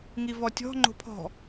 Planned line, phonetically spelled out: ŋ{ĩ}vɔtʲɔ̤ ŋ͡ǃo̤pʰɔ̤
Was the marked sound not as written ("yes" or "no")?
yes